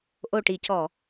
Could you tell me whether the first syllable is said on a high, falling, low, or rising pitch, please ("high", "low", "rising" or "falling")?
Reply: low